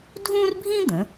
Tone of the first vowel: high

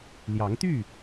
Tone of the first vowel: rising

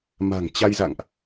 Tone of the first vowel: low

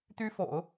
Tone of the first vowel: high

